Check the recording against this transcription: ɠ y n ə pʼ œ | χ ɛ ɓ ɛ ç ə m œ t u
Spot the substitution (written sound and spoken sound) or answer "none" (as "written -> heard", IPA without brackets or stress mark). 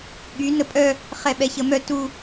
none